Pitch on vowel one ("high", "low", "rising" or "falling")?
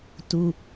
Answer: high